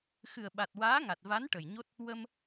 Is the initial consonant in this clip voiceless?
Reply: yes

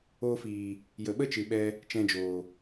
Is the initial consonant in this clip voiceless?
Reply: yes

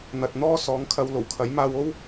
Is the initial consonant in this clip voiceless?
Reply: no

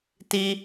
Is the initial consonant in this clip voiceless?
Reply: yes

